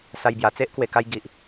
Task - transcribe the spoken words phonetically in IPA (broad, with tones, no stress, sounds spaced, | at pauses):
s a˧ j b j a˨˩ t͡s e˦ ʔ k w e˨˩ k a˧ j ɡ i˨ ʔ